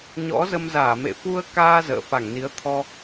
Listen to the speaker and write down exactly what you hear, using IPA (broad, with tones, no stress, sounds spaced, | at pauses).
ɲ ɔ̰˧˥ z ə˧ m z aː˧˩ m ḛ˧˨ f u˧ ə̯ k aː˧ z ə̰ː˧˨ f a˧˩ ŋ n i˨˦ ə̯ t̪ʰ ɔ˧